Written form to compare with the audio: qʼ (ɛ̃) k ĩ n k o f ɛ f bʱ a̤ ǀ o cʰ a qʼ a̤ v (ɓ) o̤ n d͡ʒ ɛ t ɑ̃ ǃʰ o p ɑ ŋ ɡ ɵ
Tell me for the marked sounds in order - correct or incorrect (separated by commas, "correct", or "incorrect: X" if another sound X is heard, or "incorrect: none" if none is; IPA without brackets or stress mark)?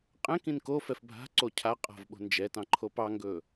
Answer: correct, correct